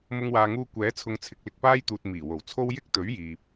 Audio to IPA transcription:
m ʊ˧ ŋ w aː˨ ŋ uː˧ kʷ ɛː˨˥ t͡sʰ ʊ˨ ŋ t͡sʰ ɪ˨ k̚ l ɪ˧ k̚ p aː˥ j t̪ uː˨ t̚ m iː˨˩ w o˨˩ w t͡sʰ o˥ w j ɪ˥ k̚ t̪ ɵ˨˥ ɥ j iː˨ p̚

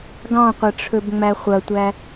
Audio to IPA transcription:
ɡ ɑ̃ qʷ ɐ ʈ͡ʂʰ ɵ b ŋ͡m æ χʷ ɐ tʷ æ

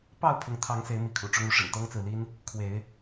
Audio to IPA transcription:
p ɑ˥˨ ʊ̯ pʰ ʊ˨˦ ŋ t̪ʰ ɑ˨˦ ŋ s e˨˦ ɪ̯ m i˨˦ kʰ ṵ˨˩ ʈ͡ʂ ʊ˦ ŋ u˨˦ ʂ ə̰˨˩ n t̪ ɤ˦ ŋ t͡s ɹ̩˨ l i˦ n | kʰ w e˨˦ ɪ̯

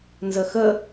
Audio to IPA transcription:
n z ə x ə

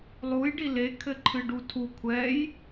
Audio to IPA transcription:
lˠ u j ɖ i l e kʰ ɘ ǃʰ ɨ ɖ u tʰ u kʷʰ ɛ j

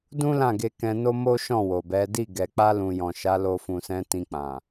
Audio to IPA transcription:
d ũ˦ l ã˦˨ ɡ e˧ k ɛ̃˧ n o˦ m o˦ ʃ ɔ̃˦˨ w o˨ b ɛ˨˦ d i˦˨ ɡ ɛ˨ k͡p a˧ l ũ˨ j ɔ̃˨ ʃ a˨˦ l o˧ f ũ˨ s ɛ̃˨˦ t ĩ˧ k͡p ã˨

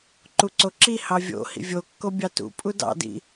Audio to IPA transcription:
ǃ u ǀ o ǁ i h ɑ vʲ o̰ h ḭ vʲ o kː o bʲ ɑ t ṵ pʼ u d ɑ̰ d ḭ

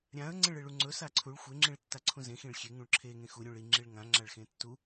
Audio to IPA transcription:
ɾʲ ã ə̯ ŋ͡ǀ ẽ ɭ e ɭ u ŋ͡ǀ ɵ s a ǀʰ u ɭ xʷ e ŋ͡ǁ ĩ ɭ tː a ǀʰ ũ z ẽ x ĩ ɭ xʲ e ŋ ũ ɭ ǁʰ e ŋ ẽ x u ɾʲ ũ ɭ i ŋ͡ǁ i ɭ ŋ ã ŋ͡ǁ a ɭ x ẽ tː u

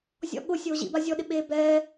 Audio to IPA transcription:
zʲ ɔ̰ ɠ ʊ sʲ oː ʑ ḭ b a zʲ ɔ ɗ ɪ ɓ eː b ɛː

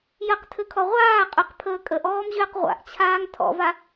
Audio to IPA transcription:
j ə q tʰ ɘ kʰ ɔ ʁʷ aː qʼ ʏ q pʰ əː kʼ ə ʔ ɔː m ʑ ʏː q ʁʷ a̰ ʔ t͡ɕʰ aː ŋ tʰ ɔ̰ v a

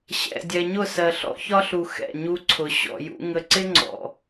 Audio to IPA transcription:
ɕ ɛ̰˨ dʲ ɛ˨ ɲ ʊ˦˨ s ɜ˨ ɬ ɔ̰˦ ç ɒ˦ ɬ u˨ x ɛ̰˦˨ ɲ u˦ ǀʰ ʊ˨ ɕ ɔ̰˨ j ṵ˦ ŋ ə˨ ǀ ɪ˦ ŋ͡ǀ ɔ̰˨

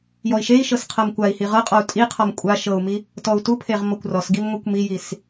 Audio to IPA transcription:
j ɔ i̯ ʃ e i̯ ʃ ɤ s qʰ ɤ m kʷ a i̯ h i ʁ ɤ qʼ ɔ u̯ tʼ i qʰ ɔ m kʷʼ a ʃ ɤ u̯ m i | t ɔ u̯ t u pʰ e ʁ m ɔ kʷ r ɔ s ɡ i m ŋʷ i kʷ m i j i s

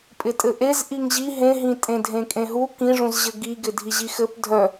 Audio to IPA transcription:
pʼ ɪ tʼ ɘ ʔ e z ʔ i ŋ ʑ i ɦ ẽ ɦ ĩ tʼ ẽ dʱ ẽ kʼ ẽ ɦ u k ĩ ʐ ũ z ʑ ɘ ɡ i ɡ ɪ dʱ i ʑ i x ɘ p dʱ œ

